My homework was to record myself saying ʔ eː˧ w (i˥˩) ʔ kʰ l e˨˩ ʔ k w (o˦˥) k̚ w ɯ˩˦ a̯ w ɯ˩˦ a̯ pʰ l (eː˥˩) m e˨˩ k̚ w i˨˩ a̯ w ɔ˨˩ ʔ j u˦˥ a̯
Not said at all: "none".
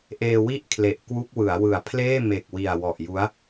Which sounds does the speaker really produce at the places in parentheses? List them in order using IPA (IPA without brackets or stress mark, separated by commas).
i˥˩, u˦˥, eː˥˩